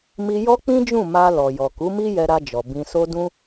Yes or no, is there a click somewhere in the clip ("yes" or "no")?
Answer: no